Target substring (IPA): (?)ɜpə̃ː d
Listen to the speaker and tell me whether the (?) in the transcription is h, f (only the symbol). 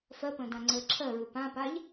f